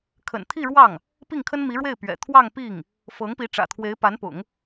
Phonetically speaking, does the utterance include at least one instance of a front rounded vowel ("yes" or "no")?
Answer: no